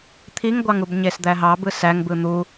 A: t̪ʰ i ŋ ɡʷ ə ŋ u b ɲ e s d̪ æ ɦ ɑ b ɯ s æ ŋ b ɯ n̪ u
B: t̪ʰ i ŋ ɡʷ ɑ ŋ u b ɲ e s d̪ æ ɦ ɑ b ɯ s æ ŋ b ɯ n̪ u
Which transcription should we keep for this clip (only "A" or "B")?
B